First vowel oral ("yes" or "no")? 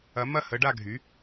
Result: yes